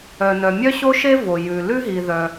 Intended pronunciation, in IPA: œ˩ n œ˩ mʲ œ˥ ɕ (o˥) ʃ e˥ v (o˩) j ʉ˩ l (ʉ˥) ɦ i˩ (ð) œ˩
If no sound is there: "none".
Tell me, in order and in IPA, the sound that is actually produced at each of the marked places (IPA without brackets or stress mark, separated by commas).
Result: o˥, o˩, ʉ˥, ð